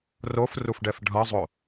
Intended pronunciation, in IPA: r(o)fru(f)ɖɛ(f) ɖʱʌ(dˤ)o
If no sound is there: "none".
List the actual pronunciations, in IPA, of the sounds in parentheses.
o, f, f, zˤ

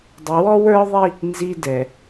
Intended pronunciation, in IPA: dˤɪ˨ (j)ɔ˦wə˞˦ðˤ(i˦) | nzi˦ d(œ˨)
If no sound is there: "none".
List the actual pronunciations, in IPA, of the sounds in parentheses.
w, i˦, ɛ˨

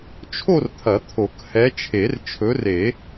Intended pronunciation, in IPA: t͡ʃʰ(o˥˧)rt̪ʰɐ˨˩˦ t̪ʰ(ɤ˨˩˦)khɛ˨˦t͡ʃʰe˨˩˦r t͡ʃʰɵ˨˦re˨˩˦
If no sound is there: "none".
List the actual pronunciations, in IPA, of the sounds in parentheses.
o˥˧, o˨˩˦

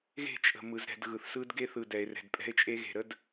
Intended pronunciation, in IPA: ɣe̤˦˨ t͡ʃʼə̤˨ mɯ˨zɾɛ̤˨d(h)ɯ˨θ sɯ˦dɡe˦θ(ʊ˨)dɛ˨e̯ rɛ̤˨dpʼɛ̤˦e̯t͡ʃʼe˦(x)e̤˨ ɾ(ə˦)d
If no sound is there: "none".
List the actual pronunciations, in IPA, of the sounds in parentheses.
ɣ, ɯ˨, ɣ, ə˦

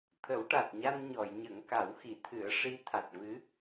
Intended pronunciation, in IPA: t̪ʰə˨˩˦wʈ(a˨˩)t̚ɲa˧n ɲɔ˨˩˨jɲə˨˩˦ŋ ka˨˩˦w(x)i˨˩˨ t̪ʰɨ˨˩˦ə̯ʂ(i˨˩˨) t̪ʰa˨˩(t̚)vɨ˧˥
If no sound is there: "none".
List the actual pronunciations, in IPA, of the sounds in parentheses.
a˨˩, x, i˧˥, t̚

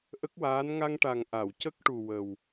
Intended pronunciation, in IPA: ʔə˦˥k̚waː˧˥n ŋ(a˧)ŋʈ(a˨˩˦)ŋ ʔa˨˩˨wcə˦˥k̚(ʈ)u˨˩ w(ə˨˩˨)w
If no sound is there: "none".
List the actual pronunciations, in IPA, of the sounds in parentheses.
a˧, a˨˩, ʈ, ə˨˩

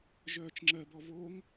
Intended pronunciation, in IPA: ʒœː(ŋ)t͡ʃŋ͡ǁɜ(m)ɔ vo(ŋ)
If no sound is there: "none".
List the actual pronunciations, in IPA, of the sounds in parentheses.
none, b, ŋ

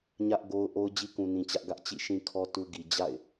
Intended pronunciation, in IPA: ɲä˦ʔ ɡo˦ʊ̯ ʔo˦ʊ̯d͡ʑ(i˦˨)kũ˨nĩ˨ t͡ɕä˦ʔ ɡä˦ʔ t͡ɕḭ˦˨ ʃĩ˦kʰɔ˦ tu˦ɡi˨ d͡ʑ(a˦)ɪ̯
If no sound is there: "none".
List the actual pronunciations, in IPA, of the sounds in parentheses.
i˦, a̰˦˨

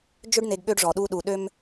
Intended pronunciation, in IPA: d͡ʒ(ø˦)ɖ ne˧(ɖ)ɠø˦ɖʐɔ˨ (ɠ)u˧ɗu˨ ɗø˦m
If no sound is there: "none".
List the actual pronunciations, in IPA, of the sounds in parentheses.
ø˦, ɡ, ɗ

